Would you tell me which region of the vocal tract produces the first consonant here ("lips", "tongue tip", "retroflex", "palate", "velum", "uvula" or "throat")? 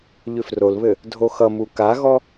palate